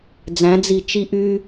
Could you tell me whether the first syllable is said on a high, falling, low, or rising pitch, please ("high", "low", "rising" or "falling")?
rising